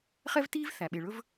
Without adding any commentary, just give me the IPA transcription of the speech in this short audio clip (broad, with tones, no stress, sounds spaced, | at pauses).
χ ɛ˥ v t iː˥ v θ æ˩ ɓ e˩ ɭ ɵ˥ v